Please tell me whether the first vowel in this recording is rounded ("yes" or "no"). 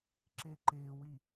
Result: no